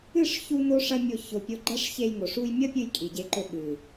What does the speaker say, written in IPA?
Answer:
ɨ˦˨ ʂ ç u˦ n o˦ ʂ ɐ˦ mʲ o˧ ç o˨ pʲ o˧ ɡ͡ǃ ɐ˦ ʂ ç e˧ j ŋ o˨ ʂ u˧ j mʲ ɐ˦ pʲ ɨ˧ j kʼ i˨ ɟ e˧ ǃ ɵ˧ ɓ ɨ˨

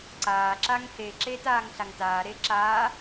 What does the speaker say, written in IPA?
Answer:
ǀ aː ǁ a ŋ h e ǁ e t aː ŋ ɬ a ŋ t aː ɾ e ǁ aː

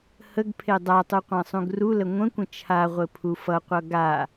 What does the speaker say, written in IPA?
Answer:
h ə ɡ pʰ e dˤ a tˤ u qʷ ã sˤ ũ ɡ r u l ə ŋʷ ə̃ kʷ ə̃ t͡ʃʰ a ʁʷ ɘ pʰ u f ʌ qʷ ʌ ɡ a

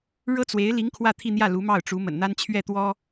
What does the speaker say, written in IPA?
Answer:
ɻ ɤ˥ t͡s w e˧˥ ɪ̯ l i˧˥ ŋ kʰ w ä˥˧ t̪ʰ i˥˧ n̪ j ä˥˩ l u˧˥ m ɑ˥˩ ʊ̯ ʈ͡ʂ u˧˥ m ə̰˨˩ n n̪ a˥ n t͡ɕʰ ɥ ɛ˥˩ t̪ w ɔ˥

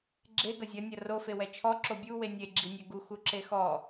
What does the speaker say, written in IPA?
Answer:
ɡ͡ǁ e ɡ ɐ zʲ ɐ nʲ ɐ r o f e w ɛ t͡ʃʰ ɔ ǁ o bʲ u w e nʲ e ɡ͡ǁ i nʲ ɛ ɡ u x u ǁ e x ɔ

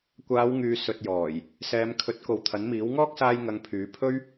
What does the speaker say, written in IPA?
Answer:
kʷ aː˨˧ w ŋ yː˨ s ɵ˨ t̚ j ɔː˨˩ j | s ɛː˨˧ m kʰ ɵ˨˥ t̚ k o˨ w t̪ʰ ɐ˨˥ n m iː˨˥ w ŋ ɔː˥ k̚ s aː˧ j ŋ ɐ˧ ŋ pʰ yː˨˥ pʰ ɵ˥ ɥ

